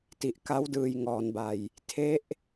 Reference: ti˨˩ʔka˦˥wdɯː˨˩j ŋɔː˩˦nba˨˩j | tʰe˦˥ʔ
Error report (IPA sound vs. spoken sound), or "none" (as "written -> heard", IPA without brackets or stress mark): none